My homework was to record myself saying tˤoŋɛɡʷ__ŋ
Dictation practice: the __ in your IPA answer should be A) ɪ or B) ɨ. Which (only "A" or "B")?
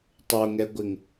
A